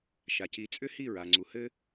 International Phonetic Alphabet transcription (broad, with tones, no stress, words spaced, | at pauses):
ʃa˩ci˩˥t͡sʼʏ˥hi˥˩ ɹa˩ŋ͡ǀu˩hɘ˥